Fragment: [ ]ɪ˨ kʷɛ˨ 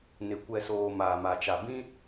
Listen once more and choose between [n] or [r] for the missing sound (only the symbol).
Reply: n